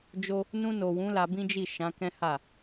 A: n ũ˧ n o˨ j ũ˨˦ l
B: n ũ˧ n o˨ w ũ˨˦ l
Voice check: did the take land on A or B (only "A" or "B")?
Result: B